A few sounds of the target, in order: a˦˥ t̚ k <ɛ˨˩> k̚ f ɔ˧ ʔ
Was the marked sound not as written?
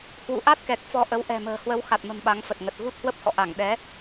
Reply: no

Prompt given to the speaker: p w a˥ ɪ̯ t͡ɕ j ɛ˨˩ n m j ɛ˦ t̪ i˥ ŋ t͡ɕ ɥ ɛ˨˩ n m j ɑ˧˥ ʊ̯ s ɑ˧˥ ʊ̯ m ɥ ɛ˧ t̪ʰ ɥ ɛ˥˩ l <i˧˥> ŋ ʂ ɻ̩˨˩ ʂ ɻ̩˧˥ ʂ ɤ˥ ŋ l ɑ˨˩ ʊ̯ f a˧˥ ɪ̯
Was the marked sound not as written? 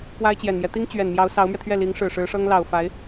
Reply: no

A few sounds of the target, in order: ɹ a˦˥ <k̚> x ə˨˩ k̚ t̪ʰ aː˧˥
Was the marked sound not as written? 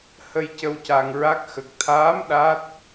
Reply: no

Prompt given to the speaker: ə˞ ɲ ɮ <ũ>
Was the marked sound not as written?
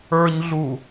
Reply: yes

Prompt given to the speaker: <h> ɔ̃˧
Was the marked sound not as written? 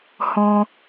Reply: no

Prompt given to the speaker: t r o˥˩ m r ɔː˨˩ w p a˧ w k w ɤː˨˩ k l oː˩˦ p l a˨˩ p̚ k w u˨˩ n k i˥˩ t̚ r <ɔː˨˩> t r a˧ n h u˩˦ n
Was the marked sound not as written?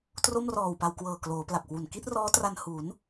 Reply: yes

